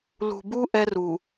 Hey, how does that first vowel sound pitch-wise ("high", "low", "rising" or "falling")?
low